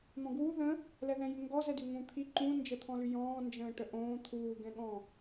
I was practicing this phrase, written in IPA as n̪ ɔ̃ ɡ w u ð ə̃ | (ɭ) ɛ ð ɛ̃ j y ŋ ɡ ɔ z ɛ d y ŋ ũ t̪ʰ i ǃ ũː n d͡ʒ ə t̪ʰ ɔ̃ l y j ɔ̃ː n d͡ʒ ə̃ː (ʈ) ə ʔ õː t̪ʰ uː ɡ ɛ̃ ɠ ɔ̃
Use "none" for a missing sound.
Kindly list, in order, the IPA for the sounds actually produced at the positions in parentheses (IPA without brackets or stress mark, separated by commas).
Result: l, ʈ